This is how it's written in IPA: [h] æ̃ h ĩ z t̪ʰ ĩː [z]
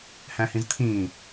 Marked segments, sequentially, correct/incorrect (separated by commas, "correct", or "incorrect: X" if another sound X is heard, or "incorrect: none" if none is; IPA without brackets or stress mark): correct, incorrect: none